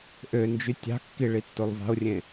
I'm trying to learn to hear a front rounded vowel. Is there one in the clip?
yes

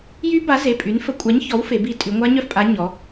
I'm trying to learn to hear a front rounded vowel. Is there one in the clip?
yes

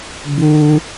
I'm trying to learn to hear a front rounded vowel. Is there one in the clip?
no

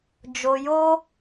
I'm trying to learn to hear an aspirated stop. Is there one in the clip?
no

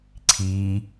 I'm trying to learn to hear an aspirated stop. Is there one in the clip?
yes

